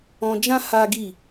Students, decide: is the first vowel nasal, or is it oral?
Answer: nasal